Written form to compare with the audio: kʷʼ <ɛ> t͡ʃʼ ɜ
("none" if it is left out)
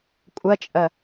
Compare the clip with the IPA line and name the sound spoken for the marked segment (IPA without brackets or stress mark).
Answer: ɜ